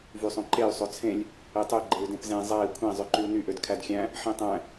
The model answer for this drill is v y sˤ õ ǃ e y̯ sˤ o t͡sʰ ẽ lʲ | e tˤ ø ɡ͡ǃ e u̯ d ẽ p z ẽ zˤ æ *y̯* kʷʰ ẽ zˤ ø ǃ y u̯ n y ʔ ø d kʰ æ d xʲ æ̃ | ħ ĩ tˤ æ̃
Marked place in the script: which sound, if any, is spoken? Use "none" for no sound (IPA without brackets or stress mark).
i̯